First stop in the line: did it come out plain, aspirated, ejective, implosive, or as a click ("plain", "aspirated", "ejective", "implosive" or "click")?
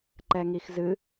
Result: click